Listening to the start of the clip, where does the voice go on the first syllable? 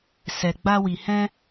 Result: low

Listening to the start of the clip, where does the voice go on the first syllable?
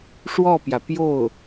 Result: falling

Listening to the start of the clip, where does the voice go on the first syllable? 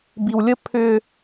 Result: low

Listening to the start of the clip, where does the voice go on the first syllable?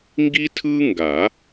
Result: high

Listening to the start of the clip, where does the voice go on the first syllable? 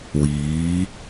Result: rising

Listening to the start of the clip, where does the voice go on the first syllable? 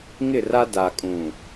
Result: falling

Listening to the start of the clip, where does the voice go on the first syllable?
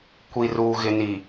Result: low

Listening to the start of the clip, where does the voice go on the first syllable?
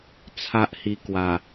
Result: high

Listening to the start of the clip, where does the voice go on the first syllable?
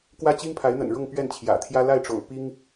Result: high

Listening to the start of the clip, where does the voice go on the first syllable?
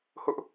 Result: high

